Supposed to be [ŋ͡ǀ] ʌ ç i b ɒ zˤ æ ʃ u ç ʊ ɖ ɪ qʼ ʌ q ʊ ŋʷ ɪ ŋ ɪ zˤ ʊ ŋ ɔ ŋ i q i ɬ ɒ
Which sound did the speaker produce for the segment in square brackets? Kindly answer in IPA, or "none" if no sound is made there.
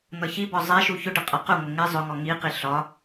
n̪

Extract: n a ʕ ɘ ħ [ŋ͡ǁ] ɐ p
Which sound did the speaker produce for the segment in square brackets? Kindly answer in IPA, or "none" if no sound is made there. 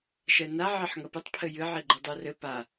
ŋ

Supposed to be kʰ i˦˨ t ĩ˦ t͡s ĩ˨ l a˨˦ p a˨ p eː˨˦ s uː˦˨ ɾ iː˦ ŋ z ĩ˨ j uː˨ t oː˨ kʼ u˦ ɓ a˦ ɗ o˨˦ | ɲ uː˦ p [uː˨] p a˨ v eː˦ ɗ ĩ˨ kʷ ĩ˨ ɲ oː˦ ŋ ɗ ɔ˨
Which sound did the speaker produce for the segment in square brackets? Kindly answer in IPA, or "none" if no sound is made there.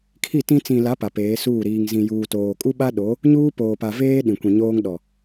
oː˨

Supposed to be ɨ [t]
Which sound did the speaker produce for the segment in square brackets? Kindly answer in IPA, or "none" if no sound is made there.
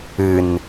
n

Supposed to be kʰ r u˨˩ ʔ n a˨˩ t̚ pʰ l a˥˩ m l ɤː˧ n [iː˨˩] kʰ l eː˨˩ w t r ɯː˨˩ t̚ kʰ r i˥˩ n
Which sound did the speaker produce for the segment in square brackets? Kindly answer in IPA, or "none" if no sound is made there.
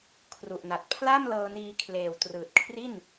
iː˧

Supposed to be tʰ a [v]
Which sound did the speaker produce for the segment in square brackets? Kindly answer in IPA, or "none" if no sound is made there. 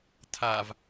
v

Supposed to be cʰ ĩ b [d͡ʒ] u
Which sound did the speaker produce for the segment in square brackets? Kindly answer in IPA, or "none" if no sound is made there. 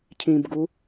ɡ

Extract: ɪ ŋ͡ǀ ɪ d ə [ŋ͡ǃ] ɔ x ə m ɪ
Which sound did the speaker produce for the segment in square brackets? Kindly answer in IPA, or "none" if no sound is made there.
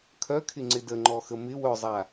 ŋ͡ǃ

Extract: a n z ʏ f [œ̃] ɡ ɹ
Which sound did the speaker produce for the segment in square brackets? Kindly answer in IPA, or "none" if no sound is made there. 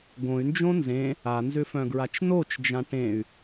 œ̃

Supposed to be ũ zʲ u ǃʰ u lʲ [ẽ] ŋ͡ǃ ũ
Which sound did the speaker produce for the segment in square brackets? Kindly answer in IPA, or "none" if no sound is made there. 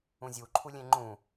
ẽ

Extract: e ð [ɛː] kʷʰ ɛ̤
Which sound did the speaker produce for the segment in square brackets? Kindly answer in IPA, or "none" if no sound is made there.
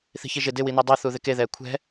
ɛː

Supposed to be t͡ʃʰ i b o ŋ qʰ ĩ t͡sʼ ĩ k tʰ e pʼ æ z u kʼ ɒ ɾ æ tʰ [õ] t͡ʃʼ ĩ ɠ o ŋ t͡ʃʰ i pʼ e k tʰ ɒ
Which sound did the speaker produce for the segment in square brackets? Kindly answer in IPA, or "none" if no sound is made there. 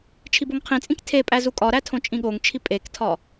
õ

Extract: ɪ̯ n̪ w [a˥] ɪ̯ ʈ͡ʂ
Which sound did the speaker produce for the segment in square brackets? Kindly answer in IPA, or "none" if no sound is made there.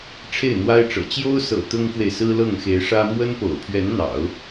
a˥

